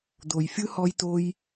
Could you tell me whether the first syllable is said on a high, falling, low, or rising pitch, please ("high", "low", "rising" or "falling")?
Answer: low